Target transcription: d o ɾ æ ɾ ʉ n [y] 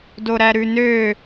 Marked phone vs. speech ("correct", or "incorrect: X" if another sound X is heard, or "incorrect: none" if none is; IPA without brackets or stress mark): incorrect: ø